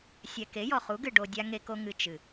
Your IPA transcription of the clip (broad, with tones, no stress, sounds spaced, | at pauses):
sʲ ɛ˨ k e˨˦ j ɔ˨ χ u˨˦ ɡ ɨ˨ ɖ o˧ dʲ a˦ ŋ e˦ k o˦ ŋ ɨ˧ t͡ʃ ɨ˨